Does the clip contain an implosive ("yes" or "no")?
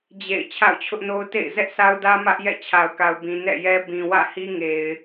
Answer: no